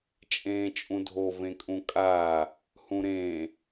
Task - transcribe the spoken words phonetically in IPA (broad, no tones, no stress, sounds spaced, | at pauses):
t͡ʃʼ ẽː t͡ʃʼ ũ dʱ o v ẽ kʼ ũ kʼ aː | h ũ ɾ ẽː